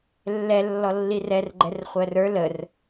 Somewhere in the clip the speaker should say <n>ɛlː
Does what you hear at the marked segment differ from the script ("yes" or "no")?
yes